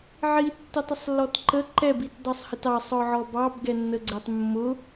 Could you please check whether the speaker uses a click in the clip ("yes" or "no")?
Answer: yes